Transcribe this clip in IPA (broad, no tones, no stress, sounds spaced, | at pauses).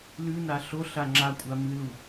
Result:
l ʉ n a ɬ o ɬ a ŋ͡ǁ a kʷʼ a m ɨ l u